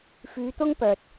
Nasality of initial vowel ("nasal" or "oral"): oral